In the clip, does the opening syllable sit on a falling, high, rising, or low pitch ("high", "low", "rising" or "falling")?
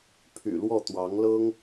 low